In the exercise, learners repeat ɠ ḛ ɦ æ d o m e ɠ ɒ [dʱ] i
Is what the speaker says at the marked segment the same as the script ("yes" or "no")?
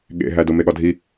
yes